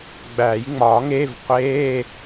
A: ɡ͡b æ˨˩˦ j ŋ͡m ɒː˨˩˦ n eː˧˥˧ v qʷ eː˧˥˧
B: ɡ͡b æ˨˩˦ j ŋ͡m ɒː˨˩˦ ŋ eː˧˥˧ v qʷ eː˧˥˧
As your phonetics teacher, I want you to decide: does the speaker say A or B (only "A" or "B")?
B